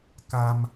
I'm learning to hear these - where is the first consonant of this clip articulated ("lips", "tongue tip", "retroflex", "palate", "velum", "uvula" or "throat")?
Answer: velum